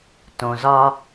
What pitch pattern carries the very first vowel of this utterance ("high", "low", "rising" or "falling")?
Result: low